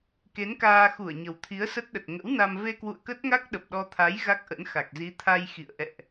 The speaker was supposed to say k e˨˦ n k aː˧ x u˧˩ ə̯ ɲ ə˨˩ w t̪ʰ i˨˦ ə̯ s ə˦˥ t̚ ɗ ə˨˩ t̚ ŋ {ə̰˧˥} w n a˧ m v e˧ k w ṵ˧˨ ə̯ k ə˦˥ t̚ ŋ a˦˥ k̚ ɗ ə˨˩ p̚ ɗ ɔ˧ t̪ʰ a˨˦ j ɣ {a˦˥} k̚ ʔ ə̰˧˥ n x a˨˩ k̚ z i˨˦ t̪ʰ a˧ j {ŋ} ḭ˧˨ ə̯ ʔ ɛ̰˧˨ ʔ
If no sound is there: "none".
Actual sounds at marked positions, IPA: ə̰˧˥, a˦˥, x

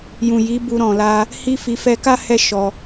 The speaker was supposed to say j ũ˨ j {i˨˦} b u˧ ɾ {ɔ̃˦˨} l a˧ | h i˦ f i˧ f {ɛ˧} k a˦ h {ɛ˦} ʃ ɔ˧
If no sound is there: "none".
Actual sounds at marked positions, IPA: i˨˦, ɔ̃˨, ɛ˧, ɛ˦

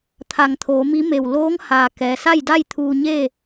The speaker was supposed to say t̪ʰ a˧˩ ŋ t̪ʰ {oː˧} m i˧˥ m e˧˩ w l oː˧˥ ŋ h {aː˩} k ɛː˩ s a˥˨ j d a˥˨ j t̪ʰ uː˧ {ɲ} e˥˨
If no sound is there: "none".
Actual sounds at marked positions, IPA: oː˩˧, aː˩, ɲ

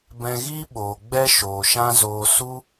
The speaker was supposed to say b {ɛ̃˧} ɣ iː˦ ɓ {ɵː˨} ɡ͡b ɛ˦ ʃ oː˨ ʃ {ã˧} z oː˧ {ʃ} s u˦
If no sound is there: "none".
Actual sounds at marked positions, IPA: ɛ̃˧, oː˨, ã˦, none

